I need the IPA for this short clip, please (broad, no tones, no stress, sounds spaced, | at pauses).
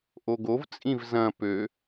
ʔ o ɡ o v t͡sʼ ĩ v z ɐ̃ p ø